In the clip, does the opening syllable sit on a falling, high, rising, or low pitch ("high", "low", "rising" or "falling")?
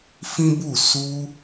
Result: high